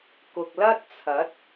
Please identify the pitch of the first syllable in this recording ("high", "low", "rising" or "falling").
low